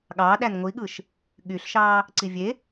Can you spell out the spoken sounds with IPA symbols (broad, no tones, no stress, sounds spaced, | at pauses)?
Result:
ɠ ɑː ɗ æ n ŋʷ i ɠ ɯ ʃ | ɠ y ɬ ʃ ɑː | ǀ i vʲ e